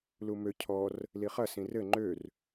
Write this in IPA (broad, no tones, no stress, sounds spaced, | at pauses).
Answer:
l u m ø cʰ ɔ r | l i χ ɐ s ĩ r ɘ ŋ͡ǃ ø r